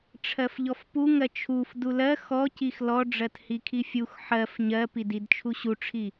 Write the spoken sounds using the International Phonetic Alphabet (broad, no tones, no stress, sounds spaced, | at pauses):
ʈ͡ʂʰ ɜ f ʎ ɔ f p u ŋ ɜ t͡ʃʰ u f d u l ɜ x ɔ c i x l ɔ ɖ͡ʐ ɜ t h i kʰ i fʲ u x ħ ɜ f ɲ ɜ p i d i d t͡ʃʰ u ɕ u ʈ͡ʂʰ i